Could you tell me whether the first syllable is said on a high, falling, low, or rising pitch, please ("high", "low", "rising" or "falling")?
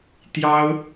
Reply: high